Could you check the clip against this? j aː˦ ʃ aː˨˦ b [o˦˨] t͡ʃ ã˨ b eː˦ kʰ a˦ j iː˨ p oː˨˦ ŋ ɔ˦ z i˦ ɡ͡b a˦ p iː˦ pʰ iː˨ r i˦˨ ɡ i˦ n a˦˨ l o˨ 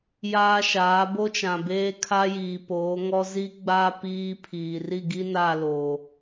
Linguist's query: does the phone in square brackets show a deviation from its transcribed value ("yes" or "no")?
yes